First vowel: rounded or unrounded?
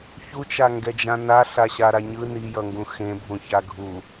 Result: rounded